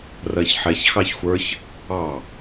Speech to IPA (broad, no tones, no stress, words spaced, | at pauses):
rɜçħɛç xɑçxʷə˞ç | ɑ